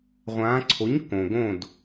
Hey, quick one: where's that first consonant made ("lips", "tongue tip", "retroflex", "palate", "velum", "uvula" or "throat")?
uvula